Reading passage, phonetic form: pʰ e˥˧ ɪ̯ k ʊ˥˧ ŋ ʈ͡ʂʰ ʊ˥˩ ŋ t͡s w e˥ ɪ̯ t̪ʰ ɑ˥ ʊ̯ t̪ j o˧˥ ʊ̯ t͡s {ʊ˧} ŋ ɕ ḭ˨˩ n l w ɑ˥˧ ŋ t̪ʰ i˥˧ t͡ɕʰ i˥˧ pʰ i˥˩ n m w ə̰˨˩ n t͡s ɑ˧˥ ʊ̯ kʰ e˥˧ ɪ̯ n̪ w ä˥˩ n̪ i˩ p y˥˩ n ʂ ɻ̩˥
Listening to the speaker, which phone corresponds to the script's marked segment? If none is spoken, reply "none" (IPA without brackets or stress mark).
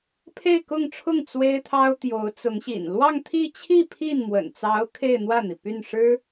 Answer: ʊ˧˥